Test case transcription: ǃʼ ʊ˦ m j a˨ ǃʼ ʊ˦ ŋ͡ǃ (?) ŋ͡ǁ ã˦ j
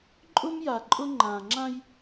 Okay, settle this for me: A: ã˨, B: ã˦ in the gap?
A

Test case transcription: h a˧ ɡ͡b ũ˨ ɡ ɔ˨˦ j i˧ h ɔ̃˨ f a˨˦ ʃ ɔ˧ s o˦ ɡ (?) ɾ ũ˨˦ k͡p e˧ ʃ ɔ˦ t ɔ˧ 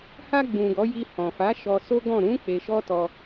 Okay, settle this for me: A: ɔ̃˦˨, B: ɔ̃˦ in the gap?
A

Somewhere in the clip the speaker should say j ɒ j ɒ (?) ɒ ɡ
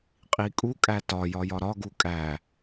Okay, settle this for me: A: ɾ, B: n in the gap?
A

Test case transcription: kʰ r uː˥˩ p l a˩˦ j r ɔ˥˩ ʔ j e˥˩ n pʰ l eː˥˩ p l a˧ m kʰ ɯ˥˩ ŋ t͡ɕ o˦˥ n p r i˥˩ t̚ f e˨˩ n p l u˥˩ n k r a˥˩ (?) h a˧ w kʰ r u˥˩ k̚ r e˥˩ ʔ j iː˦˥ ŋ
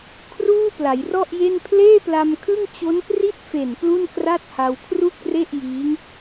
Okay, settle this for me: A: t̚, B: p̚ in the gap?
A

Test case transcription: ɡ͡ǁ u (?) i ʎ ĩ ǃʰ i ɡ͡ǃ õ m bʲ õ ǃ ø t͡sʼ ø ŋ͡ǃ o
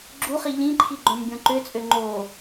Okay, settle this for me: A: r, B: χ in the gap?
B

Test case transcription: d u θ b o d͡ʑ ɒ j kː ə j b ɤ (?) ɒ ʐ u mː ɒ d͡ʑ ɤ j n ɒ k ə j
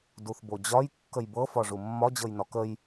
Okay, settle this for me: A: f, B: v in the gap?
A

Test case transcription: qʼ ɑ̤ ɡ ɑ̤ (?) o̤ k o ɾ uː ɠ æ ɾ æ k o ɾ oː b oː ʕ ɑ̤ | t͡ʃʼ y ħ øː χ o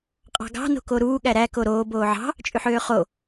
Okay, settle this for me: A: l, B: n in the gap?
B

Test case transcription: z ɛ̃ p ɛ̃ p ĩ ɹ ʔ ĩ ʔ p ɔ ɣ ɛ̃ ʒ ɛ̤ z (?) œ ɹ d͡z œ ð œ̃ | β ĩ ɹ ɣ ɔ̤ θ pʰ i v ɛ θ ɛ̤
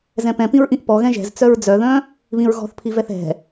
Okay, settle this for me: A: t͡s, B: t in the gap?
A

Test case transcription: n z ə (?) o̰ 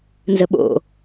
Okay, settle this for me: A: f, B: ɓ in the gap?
B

